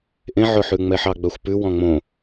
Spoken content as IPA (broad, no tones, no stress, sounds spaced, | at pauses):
ʔ ẽ ʕ ɵ ħ ʉ ŋ͡m ɛ ħ ɑ ɡ͡b œ xʷ p ʉ w ɔ̃ ŋ͡m õ